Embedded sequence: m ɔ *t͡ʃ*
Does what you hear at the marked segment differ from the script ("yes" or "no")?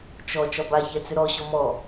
yes